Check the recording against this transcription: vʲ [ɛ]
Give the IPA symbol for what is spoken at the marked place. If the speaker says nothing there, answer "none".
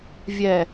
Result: ɛ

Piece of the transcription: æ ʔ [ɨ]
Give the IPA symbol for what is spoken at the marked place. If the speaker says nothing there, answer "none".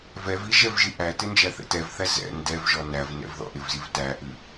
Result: ɨ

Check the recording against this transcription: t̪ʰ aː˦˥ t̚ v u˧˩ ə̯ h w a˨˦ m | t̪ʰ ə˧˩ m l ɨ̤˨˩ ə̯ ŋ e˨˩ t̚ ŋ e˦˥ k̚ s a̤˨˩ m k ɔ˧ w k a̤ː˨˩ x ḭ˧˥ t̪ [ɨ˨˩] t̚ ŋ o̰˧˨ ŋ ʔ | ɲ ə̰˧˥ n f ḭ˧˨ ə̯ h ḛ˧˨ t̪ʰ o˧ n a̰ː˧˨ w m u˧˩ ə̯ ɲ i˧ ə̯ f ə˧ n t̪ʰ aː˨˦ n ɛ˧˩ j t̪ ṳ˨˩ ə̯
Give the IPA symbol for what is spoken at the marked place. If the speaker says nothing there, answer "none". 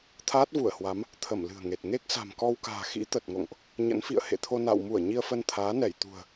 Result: ə˨˩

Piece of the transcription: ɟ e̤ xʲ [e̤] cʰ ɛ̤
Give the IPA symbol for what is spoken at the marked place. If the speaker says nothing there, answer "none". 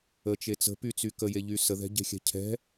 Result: ɛ̤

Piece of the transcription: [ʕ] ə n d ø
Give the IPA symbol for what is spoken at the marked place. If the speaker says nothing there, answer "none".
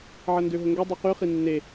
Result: ʕ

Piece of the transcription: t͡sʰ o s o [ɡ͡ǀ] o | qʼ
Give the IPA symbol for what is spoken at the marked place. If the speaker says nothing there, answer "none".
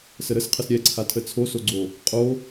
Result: ɡ͡ǀ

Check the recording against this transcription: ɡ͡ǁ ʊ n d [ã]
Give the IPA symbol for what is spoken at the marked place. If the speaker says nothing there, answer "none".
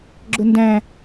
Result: æ̃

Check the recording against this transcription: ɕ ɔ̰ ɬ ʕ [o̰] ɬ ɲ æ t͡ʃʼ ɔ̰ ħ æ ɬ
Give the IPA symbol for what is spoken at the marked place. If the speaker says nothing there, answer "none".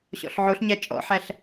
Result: o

